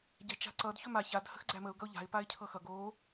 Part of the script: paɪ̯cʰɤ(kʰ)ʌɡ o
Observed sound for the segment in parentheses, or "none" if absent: x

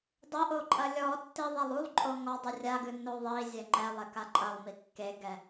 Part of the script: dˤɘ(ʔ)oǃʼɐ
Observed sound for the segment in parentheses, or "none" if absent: ʔ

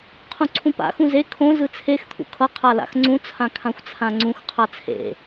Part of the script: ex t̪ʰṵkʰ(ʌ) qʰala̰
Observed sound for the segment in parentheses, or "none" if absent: ʌ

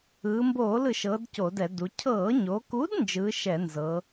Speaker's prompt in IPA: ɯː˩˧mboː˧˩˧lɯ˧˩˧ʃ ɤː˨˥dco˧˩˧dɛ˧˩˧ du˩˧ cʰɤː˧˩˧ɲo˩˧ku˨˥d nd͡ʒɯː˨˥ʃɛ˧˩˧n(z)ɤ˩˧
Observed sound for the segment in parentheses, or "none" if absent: z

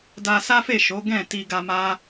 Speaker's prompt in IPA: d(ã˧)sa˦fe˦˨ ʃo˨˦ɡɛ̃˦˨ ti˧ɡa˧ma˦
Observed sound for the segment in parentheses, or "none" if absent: a˧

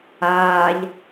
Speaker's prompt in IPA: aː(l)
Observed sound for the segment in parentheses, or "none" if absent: ʎ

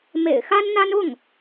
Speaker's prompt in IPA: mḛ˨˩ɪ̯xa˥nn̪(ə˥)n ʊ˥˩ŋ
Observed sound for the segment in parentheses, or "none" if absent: a˥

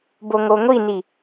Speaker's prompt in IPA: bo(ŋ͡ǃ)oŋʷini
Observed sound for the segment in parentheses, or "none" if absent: ŋ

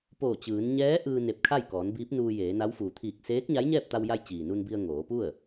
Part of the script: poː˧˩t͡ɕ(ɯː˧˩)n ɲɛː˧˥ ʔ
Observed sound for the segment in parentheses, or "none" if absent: ɯː˩˧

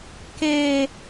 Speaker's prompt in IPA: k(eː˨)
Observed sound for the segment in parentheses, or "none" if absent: eː˦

